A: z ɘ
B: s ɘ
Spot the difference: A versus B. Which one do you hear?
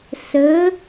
B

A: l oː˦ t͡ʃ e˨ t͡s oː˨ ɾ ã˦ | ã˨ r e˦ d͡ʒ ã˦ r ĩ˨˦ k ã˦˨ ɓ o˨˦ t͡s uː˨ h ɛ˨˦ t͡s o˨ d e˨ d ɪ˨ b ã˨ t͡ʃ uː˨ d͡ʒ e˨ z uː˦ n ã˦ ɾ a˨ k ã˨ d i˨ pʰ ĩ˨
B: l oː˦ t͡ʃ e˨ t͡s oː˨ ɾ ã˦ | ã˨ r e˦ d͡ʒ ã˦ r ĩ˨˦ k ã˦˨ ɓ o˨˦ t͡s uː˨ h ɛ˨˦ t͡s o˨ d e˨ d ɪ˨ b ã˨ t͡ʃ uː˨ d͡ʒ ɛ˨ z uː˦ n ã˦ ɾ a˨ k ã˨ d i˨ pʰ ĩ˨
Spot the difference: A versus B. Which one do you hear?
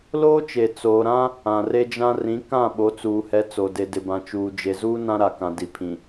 A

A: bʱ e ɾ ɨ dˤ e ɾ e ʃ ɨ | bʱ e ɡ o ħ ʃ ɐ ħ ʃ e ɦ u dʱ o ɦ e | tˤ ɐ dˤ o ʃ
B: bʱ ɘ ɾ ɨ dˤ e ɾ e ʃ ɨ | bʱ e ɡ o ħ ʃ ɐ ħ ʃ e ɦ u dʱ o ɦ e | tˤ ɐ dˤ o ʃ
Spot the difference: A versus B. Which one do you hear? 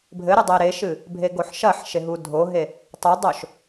B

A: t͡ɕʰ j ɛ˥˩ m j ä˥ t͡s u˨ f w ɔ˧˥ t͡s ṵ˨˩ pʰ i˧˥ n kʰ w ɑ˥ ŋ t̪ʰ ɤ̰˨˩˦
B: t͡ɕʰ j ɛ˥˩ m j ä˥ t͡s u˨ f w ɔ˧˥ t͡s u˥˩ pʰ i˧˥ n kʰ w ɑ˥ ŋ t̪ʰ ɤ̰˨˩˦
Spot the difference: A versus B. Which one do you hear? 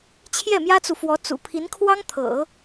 A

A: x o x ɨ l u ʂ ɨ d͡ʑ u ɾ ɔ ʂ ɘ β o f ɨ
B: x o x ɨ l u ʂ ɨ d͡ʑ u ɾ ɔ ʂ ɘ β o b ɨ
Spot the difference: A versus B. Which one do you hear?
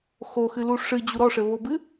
B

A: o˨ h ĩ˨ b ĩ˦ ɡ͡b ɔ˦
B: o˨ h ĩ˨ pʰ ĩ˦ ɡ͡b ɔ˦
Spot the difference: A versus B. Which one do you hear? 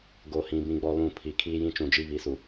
A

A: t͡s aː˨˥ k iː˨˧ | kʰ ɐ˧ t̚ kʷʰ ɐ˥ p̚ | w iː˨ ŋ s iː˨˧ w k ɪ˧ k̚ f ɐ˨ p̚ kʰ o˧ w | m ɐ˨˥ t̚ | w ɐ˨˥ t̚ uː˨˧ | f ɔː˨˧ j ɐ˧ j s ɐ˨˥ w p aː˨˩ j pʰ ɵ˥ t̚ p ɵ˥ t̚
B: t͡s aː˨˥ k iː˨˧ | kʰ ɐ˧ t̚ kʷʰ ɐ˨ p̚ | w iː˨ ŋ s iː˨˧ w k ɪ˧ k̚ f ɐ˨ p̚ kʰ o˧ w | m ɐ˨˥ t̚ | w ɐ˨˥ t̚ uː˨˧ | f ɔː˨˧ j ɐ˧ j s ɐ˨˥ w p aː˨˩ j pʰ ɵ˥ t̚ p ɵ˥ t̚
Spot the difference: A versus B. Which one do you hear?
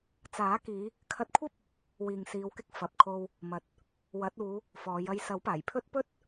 A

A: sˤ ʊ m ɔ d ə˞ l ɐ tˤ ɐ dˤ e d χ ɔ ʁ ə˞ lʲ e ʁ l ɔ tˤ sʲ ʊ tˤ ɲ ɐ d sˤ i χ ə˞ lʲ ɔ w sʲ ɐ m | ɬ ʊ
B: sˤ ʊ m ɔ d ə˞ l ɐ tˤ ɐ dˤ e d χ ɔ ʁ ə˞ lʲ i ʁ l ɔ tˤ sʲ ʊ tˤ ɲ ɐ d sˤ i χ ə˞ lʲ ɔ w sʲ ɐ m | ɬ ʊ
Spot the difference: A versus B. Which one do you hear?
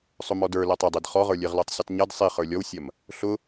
A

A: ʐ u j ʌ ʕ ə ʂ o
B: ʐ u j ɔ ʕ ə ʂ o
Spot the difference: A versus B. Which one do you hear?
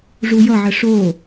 A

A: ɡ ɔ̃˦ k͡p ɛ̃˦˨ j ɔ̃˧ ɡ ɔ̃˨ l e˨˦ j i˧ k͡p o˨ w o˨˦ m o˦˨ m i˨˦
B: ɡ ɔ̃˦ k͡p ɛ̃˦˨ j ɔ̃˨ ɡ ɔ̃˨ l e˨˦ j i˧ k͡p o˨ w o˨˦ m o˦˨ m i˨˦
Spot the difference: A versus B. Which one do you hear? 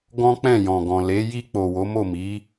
B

